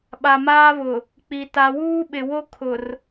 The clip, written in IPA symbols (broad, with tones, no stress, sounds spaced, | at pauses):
ɓ a˨ m aː˦ β ʊ˨ | k͡p i˨ t a˨ w uː˦ ɓ ɪ˨ w o˦ kʰ ʊ˨ r